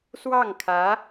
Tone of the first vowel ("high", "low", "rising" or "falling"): falling